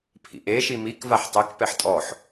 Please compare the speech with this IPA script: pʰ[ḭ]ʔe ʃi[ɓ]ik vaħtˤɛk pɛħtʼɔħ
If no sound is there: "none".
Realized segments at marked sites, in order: ḭ, m

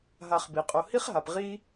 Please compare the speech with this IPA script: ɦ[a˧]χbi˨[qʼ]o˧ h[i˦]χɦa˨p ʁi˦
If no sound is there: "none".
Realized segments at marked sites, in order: a˧, qʼ, i˦

